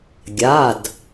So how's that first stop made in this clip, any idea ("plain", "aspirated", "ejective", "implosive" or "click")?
plain